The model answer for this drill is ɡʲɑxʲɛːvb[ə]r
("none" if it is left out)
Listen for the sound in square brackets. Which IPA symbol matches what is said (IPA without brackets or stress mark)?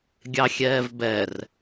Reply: ɛ